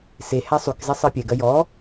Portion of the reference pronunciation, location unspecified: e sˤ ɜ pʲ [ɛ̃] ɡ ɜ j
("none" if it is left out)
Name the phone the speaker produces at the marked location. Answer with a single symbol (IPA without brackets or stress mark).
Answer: ɛ